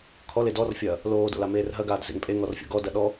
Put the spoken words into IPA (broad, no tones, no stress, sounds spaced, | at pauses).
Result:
kʰ ɔ l e d ɔ r fʲ ɐː | l oː d o̰ l a m eː r ɦ ɐ ɡ aː d z ḛ ŋ pʼ e ŋ ɔ r fʲ o̰ ɡ ɔ d ɐ ɗ ɔ